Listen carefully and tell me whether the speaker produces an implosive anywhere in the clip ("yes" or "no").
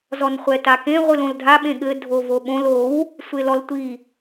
yes